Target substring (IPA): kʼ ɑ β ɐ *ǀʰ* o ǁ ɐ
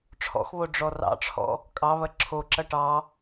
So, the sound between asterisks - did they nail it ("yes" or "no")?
no